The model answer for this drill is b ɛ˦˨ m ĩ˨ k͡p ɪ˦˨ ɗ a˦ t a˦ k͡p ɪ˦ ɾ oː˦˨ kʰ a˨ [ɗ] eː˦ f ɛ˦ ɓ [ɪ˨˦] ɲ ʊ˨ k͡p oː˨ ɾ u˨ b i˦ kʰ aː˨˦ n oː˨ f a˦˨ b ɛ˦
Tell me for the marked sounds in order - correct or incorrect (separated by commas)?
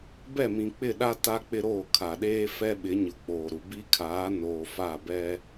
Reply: correct, correct